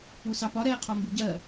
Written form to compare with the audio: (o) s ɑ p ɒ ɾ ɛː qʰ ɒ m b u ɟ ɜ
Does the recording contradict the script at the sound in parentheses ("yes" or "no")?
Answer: yes